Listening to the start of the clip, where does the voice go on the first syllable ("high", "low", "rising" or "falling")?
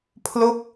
falling